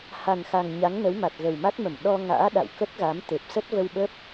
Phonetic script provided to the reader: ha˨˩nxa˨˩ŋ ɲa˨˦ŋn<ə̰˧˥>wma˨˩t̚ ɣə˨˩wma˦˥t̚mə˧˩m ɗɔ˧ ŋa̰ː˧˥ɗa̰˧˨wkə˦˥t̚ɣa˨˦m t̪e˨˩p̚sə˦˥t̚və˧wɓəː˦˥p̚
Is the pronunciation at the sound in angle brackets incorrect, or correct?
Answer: incorrect